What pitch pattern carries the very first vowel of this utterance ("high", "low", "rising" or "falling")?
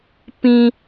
high